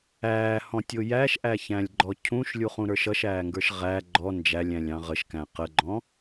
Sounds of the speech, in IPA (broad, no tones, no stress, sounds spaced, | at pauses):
æː h ɔ̃ tʲ ʊ j æ ʃ ʔ æ ç æ̃ lʲ ɡ͡ǃ ɔ cʰ ũ ʃ lʲ u χ ũ ɾ ə˞ ʃ ʌ ʃ æː ŋ ɡ ə˞ ʃ ʁ æ ɡ͡ǃ ɔ n d͡ʒ æ lʲ æ̃ lʲ ɑ̃ ʁ ə ʃ k æ̃ q ə ɡ͡ǃ ɔ̃